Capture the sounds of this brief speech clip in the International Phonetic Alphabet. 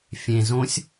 fʲ ẽ z õ sʲ

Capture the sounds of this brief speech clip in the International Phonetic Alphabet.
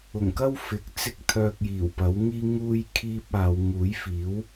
ʊ˨˩ ŋ k ɐ˥ w f ɪ˨˥ k̚ t͡s ɪ˥ k̚ t̪ʰ œː˧ k̚ j iː˨˩ w p ɐ˨˥ w ŋ iː˥ ŋ uː˥ j kʰ iː˥ p̚ aː˨˧ w ŋ uː˨˥ j f iː˨˥ w

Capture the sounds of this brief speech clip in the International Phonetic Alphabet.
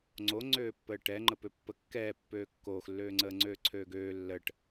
ŋ͡ǀ o ŋ͡ǀ øː pː əː ʈ ɛ ŋ͡ǃ ə p ø pː ə kː ɛː pː øː kː oː x lː øː ŋ͡ǀ əː ŋ͡ǀ øː ǀʰ øː ɡ øː lː ə ʈ

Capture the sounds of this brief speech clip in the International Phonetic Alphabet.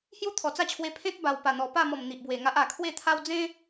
h j u˦ t̪ʰ ɔ˨˩ t͡s a˦ t͡ɕʰ w e˧ pʰ ẽ˦ t̚ b a˨˩ w p a˨˩ n̪ ɔ˨˩ p a˥˧ m ɔ˨˩ m n̪ i˨ ʔ b w e˨˩ ŋ a˦ ʔ a˨˩ kʰ w e˥˧ t̪ʰ a˦ w d͡z ẽ˦

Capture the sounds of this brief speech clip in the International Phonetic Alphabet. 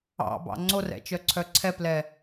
ɑ̰ b ɑ̰ ŋ͡ǀ o r ɛ̰ t͡ʃ œ ǀʰ œ ǀʰ ɛ p l ɛ

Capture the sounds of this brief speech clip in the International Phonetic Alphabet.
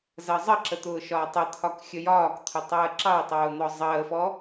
z ɜ zˤ ə ǁ ə t̪ ʊː ʃ ɒː tˤ ə t̪ʰ ɒ k xʲ ə j ɒː k t̪ʰ ʊ tˤ əː ǁ ɑ w tˤ ʊː n̪ ɔ zˤ əː f ɔ

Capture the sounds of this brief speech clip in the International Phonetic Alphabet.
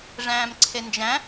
ʐ æ̃ː m ǀʰ e n d͡ʒ æ̃

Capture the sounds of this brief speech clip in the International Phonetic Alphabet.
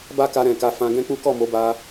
b a˦ k a˧ ɾ ɛ̃˨ k a˧ f ã˧ ɡ ɛ̃˦ k͡p u˦ k ɔ˦˨ m o˨˦ b a˧

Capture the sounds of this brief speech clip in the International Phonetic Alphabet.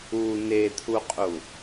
u n e t̪ʰ u qʼ u

